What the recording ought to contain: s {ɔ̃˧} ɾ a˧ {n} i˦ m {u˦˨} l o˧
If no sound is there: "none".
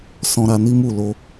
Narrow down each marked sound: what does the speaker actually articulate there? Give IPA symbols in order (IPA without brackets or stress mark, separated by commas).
ɔ̃˧, n, u˦˨